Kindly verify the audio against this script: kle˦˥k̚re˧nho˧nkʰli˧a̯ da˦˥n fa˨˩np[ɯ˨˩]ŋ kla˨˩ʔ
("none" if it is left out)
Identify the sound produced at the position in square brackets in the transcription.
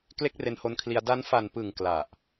ɯ˨˩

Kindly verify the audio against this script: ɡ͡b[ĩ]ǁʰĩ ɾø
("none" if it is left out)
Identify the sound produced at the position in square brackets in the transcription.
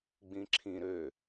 ĩ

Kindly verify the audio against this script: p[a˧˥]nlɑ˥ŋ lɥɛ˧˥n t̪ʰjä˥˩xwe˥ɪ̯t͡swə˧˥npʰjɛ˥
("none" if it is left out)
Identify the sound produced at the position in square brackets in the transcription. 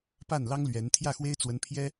a˥˩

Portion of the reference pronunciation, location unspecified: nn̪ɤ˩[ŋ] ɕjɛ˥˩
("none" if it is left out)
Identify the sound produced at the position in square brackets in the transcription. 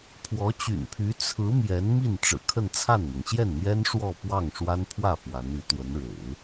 ŋ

